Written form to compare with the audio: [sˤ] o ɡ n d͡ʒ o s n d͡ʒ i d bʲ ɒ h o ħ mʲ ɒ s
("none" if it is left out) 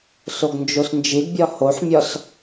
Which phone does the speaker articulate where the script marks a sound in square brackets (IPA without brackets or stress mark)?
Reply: s